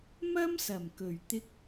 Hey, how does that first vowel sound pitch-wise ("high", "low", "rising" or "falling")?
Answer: high